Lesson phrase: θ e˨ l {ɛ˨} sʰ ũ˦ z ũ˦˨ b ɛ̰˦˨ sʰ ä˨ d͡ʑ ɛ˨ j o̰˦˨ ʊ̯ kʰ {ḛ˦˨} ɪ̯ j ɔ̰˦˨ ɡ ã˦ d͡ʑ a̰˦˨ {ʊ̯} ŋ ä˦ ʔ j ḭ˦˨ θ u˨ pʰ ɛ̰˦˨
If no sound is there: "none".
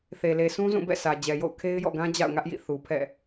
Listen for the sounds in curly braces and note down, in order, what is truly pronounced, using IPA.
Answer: e˨, e˦, ʊ̯

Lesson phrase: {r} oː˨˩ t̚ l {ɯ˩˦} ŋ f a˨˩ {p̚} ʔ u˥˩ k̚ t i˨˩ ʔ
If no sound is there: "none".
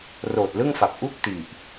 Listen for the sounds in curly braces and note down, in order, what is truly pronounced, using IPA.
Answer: r, ɯ˥˩, p̚

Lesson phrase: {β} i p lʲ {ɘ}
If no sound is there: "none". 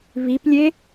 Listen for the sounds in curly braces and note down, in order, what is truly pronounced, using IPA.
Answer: β, e

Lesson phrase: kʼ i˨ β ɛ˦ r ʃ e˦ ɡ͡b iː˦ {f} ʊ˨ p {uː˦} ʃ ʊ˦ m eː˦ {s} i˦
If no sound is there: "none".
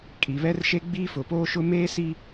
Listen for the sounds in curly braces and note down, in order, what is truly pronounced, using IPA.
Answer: f, oː˦, s

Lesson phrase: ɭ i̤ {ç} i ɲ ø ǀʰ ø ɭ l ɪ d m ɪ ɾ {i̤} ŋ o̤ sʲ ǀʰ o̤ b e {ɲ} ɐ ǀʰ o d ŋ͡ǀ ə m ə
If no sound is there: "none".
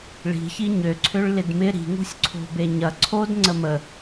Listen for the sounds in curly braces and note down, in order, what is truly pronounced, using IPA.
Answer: ç, i̤, ɲ

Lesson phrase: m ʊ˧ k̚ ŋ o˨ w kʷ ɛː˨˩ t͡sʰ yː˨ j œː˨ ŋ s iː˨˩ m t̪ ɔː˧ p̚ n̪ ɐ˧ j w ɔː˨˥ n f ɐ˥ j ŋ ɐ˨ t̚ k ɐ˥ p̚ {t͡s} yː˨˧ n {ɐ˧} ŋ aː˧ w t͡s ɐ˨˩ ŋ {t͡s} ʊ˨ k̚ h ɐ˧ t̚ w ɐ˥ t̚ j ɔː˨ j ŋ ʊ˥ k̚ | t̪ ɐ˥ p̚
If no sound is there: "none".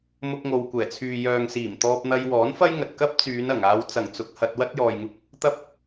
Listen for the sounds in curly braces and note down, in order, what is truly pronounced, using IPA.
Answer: t͡s, ɐ˨˩, t͡s

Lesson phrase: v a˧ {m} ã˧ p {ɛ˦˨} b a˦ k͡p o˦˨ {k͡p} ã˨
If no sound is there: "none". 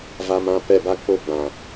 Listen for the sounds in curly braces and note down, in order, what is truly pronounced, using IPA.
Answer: m, ɛ˦˨, ɡ͡b

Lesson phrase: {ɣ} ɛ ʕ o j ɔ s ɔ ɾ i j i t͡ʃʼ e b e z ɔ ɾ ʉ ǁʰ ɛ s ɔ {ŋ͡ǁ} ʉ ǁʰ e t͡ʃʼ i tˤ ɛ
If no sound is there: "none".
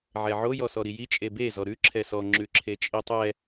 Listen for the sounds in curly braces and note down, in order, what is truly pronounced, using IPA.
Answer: ʕ, ŋ͡ǁ

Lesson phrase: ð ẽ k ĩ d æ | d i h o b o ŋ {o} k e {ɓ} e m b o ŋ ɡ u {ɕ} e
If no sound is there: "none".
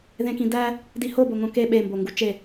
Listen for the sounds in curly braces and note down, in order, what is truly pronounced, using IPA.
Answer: õ, ɓ, t͡ʃ

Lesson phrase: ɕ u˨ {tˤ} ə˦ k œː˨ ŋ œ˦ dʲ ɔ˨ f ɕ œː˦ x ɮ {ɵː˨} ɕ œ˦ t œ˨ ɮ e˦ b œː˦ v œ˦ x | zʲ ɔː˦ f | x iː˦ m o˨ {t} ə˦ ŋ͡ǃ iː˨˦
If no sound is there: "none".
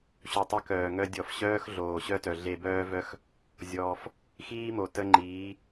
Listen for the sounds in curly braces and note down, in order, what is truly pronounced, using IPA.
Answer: tˤ, oː˨, t

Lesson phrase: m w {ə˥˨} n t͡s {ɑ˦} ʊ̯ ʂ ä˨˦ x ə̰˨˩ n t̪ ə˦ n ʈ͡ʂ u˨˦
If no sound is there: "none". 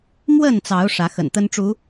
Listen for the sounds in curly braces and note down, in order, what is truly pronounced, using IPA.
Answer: ə˥˨, ɑ˨˦

